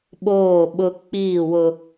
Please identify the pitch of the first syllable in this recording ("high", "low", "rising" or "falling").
falling